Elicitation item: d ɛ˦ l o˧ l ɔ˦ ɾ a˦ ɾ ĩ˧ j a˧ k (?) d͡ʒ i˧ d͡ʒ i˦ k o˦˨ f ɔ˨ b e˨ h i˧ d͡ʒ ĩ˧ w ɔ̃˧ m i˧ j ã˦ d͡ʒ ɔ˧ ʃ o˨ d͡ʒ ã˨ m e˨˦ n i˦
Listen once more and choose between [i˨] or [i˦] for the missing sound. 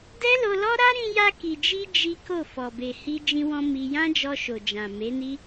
i˨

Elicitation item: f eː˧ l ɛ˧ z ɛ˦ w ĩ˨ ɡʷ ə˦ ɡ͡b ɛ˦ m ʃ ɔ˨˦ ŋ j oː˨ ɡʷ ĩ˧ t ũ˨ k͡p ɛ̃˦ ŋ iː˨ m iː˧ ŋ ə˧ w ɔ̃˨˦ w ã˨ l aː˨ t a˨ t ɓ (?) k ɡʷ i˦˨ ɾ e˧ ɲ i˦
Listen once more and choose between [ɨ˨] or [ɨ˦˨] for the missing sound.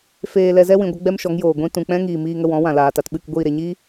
ɨ˦˨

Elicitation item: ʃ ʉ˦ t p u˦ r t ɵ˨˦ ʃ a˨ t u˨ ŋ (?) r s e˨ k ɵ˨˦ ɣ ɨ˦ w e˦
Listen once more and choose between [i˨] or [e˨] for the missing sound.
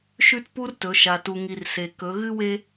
i˨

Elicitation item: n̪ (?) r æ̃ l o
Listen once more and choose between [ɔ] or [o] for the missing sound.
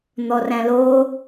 ɔ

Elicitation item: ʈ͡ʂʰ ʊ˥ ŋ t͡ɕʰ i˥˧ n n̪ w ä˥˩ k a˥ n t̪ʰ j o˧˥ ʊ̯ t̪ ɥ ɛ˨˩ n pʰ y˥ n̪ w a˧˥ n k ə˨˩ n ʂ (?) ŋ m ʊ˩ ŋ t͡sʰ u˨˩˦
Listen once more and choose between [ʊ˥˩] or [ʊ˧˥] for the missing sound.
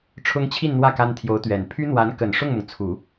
ʊ˥˩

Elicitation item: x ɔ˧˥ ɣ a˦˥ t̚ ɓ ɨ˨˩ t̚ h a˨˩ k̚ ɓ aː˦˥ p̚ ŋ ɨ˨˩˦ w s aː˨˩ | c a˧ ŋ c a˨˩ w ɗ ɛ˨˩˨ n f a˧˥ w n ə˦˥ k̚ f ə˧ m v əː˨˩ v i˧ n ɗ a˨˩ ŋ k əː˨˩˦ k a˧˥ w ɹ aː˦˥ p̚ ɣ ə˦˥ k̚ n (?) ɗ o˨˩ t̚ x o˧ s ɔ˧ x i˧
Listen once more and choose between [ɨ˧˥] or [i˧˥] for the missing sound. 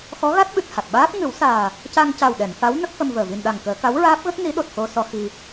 i˧˥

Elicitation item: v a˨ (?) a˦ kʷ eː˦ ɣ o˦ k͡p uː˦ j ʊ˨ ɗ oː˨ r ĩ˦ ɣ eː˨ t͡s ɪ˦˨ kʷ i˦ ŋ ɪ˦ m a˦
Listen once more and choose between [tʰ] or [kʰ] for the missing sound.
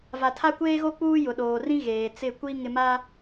tʰ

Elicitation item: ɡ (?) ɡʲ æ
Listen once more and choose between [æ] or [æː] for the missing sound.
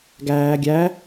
æː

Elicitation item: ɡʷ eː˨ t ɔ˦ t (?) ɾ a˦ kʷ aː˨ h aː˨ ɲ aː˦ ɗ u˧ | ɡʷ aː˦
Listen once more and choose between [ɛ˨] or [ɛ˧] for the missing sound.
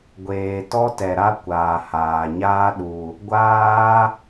ɛ˨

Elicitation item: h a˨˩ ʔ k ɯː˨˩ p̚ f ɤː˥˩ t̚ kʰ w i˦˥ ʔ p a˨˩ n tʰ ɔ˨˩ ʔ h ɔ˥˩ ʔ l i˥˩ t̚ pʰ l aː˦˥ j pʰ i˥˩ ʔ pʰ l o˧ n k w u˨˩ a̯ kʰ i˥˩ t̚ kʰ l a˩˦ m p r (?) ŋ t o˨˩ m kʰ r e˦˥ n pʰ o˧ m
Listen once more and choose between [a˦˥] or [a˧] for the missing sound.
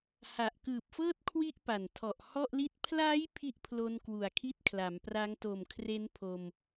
a˦˥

